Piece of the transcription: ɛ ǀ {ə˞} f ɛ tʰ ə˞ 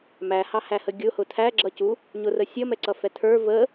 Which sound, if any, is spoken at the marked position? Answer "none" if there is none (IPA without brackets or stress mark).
ʌ